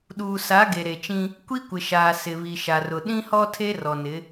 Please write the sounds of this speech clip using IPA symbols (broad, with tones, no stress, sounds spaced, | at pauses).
ɗ uː˨ s a˨˦ ɡ e˨ ɾ e˨ t͡ʃ ĩ˦ | kʷ i˦ kʷ ɪ˨ ʃ aː˨ s ɪ˨ β i˨ ʃ a˨ r ʊ˨ ɗ ĩ˦ h ɔ˦ tʰ e˦ r ɔ˨ n ɪ˨˦